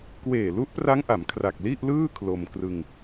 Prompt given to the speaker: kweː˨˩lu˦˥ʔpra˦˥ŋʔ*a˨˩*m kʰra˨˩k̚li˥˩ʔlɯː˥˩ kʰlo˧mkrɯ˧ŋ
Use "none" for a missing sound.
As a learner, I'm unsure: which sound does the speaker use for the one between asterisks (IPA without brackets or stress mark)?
a˩˦